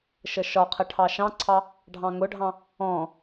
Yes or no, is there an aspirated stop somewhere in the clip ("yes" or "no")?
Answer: yes